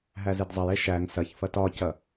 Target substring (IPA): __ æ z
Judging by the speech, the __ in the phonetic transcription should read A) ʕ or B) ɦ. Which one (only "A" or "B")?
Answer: B